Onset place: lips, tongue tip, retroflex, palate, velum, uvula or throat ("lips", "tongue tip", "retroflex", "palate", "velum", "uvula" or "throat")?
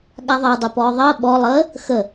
velum